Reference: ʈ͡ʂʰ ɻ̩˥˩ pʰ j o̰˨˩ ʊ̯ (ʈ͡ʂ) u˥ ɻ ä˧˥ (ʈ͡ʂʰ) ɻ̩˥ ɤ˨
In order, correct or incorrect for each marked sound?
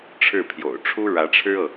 incorrect: ʈ͡ʂʰ, correct

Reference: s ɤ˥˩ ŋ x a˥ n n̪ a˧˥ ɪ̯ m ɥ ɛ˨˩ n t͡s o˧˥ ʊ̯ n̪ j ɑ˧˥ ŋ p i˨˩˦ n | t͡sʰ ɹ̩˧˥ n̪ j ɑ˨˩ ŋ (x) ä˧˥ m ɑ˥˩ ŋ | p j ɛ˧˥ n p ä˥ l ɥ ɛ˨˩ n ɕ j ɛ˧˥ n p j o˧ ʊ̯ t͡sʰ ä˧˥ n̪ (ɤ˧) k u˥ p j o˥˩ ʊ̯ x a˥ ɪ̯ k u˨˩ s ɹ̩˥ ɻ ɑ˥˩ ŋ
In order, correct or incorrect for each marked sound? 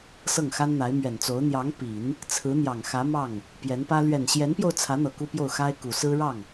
correct, incorrect: ɤ˨˩

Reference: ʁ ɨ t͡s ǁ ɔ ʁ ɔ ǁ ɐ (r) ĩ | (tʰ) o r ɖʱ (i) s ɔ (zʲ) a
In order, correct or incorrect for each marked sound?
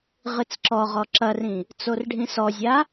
correct, incorrect: t͡s, incorrect: ĩ, correct

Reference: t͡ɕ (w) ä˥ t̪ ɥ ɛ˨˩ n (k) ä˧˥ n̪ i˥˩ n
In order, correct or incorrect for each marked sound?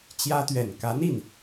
incorrect: j, correct

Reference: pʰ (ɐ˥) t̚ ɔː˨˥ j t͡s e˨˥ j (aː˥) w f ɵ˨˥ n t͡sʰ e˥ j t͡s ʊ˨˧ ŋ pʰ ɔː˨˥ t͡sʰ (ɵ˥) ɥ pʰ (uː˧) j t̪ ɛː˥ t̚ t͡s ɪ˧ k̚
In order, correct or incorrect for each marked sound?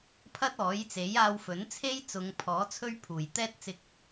correct, incorrect: aː˧, correct, incorrect: uː˨˩

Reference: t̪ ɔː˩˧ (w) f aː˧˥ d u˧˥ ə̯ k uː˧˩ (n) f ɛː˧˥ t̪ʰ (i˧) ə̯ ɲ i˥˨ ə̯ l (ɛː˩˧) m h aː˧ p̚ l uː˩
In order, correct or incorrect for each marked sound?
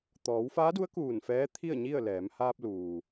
correct, correct, incorrect: i˥˨, correct

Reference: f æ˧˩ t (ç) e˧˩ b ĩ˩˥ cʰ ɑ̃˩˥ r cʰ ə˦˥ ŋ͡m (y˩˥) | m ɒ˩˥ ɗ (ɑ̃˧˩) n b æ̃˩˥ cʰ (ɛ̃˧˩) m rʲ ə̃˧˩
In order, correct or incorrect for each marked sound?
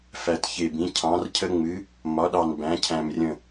correct, incorrect: ɨ˩˥, incorrect: ɑ˧˩, incorrect: æ̃˧˩

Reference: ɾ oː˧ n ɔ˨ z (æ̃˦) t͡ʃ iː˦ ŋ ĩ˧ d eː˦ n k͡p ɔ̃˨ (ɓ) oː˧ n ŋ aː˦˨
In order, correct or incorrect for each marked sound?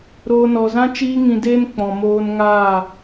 incorrect: ã˦, incorrect: m

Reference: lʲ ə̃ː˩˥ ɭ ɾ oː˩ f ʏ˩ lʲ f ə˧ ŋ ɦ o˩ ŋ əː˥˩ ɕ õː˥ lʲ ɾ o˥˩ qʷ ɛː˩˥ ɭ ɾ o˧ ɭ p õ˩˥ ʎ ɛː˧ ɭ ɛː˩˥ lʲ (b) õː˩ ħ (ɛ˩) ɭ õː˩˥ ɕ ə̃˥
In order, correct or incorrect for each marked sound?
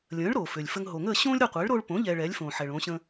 incorrect: f, correct

